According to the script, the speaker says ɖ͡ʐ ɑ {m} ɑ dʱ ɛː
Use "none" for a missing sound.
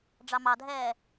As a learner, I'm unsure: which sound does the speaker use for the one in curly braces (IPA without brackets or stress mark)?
m